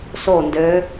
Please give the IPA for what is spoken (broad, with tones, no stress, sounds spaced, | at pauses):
s o˥˨ n d ø˧˥